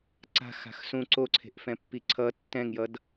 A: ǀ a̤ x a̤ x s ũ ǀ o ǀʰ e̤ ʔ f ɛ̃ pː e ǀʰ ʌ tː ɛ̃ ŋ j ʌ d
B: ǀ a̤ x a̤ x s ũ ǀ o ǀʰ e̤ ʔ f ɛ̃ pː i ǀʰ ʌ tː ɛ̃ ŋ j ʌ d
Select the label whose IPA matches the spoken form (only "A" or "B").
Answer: B